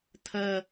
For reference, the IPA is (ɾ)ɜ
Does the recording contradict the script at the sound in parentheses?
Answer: yes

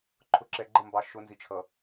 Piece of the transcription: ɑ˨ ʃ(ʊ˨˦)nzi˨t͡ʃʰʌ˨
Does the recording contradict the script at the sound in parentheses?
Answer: no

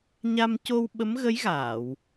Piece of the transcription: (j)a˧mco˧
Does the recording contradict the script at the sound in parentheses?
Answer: yes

